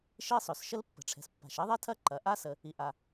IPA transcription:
ʃ i˥ sˤ ø˩ s ʃ ə˥ l pː ə̤˩ ʈ͡ʂʰ ɛ̤˩ s pː a̤˩ ʃ i˥ ðˤ e˥ tʰ ɐ˥ ǃ ɐ˩ ʔ a˥ s ə˩ | i˩ ʔ a˩

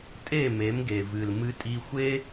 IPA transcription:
tʼ e˦˨ m e˨˦ m ɡ e˨ v ɨ˨ l m ɨ˧ tʼ i˧ xʷ e˦

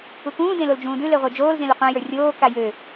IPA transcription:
u k ũː d ẽ l o l d͡ʒ ũː d ʉ l e ʁʷ ə˞ d͡ʒ oː l z ẽ l ʉ qʷ ã j ə˞ rʲ oː k a j ø

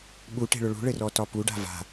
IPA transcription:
ɓ u ʈ e̤ ɭ ʊ ɭ ṳ ɭ ɘ r ɔ t ɒ p u ɖ a̤ v a̤

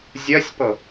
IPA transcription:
zʲ ɜ sʲ p ɤ

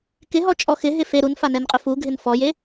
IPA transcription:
k ɪ ɦ ɔ t͡ʃʼ ɔ x ɪ ɦ ɪ f e ɾ u n f a n ɛ n qʼ ʊ f u ɡʱ ɪ n f ɔ j e

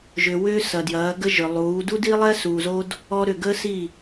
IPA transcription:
ʒ ʏ˨ w ʏː˦ s ɐ˨ d j ɐː˨˦ ɡ ə˦ ʒ ʏ˨ lˠ uː˨˦ d u˦ d i˦ lˠ ɛ˦ s uː˨ z o˦ d | ɔ˦ ɾ ʏ˦˨ ɡ ə˦ s i˦˨

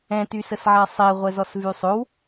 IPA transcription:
ɛ̃ t y s ə s ʕ a sˤ ɛ ʁʷ ɛ z ɔ s v y sˤ o w

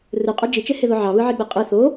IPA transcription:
r ɯ qʼ o d͡ʒ i t͡ʃ e h e ð o ʕ ɑ β ɯ ʕ i ɡ͡b e qʼ ɯ θ o

